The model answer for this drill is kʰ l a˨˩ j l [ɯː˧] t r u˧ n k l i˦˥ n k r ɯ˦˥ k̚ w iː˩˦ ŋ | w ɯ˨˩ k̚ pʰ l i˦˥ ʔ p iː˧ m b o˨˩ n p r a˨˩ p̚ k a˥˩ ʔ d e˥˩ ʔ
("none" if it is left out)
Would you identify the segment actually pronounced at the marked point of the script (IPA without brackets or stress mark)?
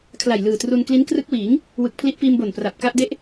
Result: ɯː˨˩